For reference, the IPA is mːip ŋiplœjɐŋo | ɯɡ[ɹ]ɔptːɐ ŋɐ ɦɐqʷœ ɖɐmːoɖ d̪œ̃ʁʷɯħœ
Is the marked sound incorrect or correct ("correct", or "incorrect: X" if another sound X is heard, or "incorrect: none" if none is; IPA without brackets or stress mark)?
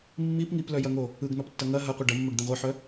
incorrect: n